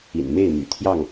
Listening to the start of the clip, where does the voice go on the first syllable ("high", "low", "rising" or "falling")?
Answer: low